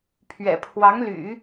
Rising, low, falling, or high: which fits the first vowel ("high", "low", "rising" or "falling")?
low